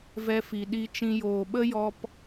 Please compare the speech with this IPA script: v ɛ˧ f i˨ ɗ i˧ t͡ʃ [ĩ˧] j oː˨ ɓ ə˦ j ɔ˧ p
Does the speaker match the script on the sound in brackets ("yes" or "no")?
yes